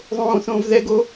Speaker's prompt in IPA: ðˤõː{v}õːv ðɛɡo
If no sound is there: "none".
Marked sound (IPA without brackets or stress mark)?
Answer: θ